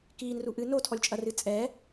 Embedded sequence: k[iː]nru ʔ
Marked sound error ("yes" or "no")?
no